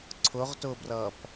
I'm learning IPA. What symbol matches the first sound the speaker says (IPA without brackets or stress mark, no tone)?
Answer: ǀʰ